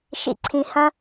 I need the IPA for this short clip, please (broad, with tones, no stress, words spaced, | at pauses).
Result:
ʃḭ˨ǀʰĩ˨hɐ̃˦